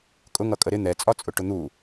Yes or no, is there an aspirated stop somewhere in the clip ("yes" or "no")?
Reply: no